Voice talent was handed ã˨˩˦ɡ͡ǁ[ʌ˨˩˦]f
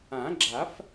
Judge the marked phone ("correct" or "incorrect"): incorrect